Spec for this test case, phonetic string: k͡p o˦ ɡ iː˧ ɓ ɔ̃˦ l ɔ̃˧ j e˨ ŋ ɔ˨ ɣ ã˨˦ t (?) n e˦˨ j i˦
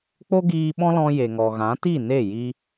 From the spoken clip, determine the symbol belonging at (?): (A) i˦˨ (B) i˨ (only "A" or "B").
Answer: A